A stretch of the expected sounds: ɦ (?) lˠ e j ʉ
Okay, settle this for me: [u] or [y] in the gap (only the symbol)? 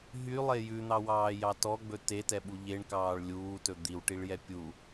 y